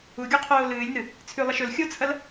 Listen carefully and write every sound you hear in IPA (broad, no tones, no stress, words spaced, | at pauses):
uɡʲoqʰoː lɨːlʲnɨ | t͡sʰʉlˠɐʃ ɵl xʲot͡sʰɐl